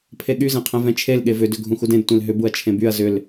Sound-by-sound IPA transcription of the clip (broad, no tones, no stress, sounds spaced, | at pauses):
pʰ e ɠ y z ẽ qʰ ɛ̃ v ɛ̃ t͡ʃʰ e l ɠ e v ʏ d ʏ ɡʱ ũ x u d ẽ d tʷ ẽ l ɦ ʏ b u ɐ̯ t͡ʃʰ ẽ b y ɐ̯ z ʏ l